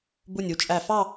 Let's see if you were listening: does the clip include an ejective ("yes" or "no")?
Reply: yes